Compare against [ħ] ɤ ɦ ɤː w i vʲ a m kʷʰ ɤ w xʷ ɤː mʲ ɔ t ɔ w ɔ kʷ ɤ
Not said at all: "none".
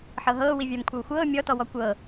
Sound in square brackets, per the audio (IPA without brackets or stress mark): ħ